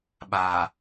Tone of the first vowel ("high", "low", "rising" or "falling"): low